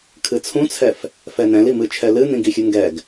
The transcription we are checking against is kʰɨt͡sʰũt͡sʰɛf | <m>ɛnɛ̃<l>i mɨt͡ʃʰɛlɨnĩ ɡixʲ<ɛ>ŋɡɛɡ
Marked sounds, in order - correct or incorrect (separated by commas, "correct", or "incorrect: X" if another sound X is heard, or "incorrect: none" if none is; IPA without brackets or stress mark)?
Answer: incorrect: f, correct, incorrect: ɨ